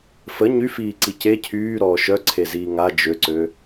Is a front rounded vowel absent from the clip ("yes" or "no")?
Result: no